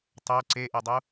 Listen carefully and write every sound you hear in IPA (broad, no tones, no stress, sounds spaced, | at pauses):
tˤ œ ǀ e ʔ e dˤ u